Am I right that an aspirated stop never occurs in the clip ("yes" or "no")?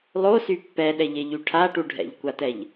no